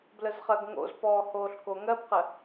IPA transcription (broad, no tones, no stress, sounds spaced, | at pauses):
b l ə z χ ɜ ɡ ŋ o̰ z p ɔː h oː ɬ k o ŋ ɜ b q ə